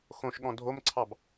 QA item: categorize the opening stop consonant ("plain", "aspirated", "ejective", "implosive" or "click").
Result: implosive